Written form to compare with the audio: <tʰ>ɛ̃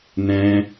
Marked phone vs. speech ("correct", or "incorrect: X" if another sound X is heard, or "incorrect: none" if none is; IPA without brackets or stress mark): incorrect: n̪